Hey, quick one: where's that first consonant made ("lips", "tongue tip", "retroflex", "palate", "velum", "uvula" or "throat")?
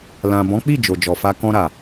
tongue tip